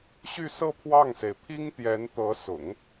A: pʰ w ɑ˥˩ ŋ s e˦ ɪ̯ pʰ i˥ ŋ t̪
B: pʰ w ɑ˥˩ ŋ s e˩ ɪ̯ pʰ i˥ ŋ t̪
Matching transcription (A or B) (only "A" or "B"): B